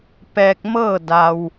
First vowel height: mid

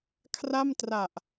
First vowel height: low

